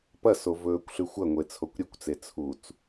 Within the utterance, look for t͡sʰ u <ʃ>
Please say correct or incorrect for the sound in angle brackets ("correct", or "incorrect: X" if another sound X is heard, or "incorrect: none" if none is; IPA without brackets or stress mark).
incorrect: t͡s